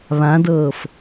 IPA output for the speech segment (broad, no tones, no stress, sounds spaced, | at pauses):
β ã d ɤː f